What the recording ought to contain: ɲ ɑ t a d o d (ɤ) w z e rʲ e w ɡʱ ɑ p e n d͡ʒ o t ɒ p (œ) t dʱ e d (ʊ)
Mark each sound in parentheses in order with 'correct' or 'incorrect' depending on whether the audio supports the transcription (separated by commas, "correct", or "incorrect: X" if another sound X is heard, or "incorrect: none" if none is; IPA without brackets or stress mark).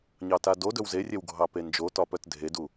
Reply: incorrect: ɵ, correct, incorrect: u